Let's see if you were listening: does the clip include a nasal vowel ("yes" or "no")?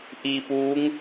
no